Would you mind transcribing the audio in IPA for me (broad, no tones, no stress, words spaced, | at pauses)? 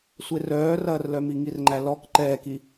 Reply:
sʷerœːrɐːrlœ miŋirŋ͡ǃælɔk ǃɛːki